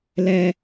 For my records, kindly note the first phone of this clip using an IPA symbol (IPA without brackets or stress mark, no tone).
l